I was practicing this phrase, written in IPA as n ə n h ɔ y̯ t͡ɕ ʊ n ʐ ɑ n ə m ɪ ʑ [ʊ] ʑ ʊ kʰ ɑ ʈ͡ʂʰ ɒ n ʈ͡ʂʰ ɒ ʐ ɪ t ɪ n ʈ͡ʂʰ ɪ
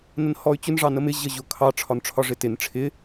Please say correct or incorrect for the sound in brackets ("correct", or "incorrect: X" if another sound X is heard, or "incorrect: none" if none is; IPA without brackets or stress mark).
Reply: incorrect: ə